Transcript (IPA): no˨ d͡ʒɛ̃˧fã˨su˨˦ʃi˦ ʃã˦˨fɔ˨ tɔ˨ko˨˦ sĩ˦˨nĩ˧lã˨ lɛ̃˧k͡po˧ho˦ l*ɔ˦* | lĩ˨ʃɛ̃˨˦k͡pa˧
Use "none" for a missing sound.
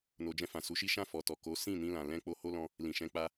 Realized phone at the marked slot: ɔ̃˦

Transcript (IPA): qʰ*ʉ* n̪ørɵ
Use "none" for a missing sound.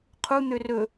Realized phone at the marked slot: u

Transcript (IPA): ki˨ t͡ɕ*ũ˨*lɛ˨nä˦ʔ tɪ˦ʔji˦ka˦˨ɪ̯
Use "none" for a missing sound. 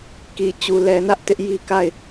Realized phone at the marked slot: u˨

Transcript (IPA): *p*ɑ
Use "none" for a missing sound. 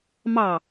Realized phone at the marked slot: m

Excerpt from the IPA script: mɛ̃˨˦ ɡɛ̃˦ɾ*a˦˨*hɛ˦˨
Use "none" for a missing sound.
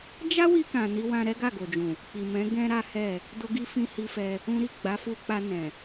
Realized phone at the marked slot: a˦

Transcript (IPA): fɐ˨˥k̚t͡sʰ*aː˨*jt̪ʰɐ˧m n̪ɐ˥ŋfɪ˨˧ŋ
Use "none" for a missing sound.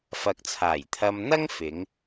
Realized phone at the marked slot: aː˨˩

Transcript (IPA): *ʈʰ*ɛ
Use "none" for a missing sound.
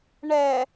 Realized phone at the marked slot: ɳ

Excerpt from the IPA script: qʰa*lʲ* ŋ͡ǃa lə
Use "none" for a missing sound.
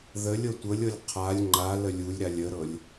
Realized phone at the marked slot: lʲ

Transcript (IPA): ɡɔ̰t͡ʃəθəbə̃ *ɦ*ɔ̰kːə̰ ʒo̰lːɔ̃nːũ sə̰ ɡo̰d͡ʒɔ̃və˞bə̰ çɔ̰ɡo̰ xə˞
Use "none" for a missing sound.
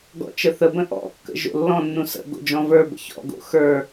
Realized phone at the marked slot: ʔ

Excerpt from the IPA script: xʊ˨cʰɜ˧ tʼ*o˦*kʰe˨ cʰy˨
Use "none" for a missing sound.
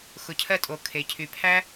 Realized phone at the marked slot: o˨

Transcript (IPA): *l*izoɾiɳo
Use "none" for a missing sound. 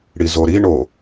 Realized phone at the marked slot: ɽ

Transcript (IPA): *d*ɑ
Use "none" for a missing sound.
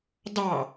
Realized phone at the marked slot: d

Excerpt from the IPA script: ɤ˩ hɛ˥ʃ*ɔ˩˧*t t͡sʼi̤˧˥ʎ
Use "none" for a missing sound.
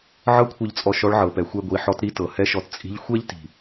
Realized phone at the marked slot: ɔ˧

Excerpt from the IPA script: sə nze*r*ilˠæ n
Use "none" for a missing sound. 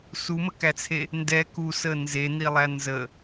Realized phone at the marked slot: n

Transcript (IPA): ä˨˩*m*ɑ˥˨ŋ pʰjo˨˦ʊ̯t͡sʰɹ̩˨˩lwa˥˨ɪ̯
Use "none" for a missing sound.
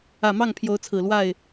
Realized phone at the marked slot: m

